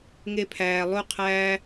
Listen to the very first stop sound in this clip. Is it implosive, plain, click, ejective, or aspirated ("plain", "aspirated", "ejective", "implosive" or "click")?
aspirated